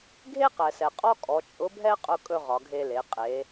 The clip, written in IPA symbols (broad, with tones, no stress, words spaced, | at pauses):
ɡʱe˥qɛ˩sɛ˩ qʼɔ˥kʼɔ˩˧ t͡ʃʼʊ˧˥bʱɛ˥ qʼʊ˧kʼɵ˧ ʁɒ˩˧ɡʱe˧le˩˧ qʼe˩˧